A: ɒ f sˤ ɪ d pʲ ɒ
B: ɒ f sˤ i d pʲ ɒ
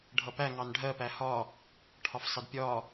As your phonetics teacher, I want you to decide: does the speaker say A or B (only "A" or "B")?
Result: A